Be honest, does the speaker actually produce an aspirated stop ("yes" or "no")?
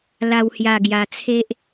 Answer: yes